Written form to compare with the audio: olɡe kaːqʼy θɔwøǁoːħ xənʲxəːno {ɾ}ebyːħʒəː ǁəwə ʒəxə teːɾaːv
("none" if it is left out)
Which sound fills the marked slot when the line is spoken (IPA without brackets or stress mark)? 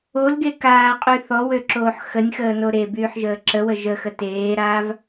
ɾ